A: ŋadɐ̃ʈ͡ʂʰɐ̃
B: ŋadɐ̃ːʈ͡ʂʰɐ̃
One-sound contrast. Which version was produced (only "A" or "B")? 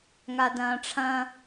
B